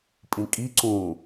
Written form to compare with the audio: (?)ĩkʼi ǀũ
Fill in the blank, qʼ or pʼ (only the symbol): pʼ